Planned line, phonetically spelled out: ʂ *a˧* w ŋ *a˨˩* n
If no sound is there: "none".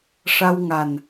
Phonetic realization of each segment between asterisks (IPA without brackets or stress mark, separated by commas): a˧, a˨˩